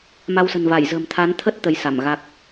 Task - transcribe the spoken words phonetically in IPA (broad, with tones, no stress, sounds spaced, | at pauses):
m a˧ w s ə̤˨˩ n v a˧˩ j z ə̤˨˩ m t̪ʰ a˨˦ n t̪ʰ ə˦˥ t̚ t̪ ə˨˦ j s a˧˩ m ɣ a˦˥ k̚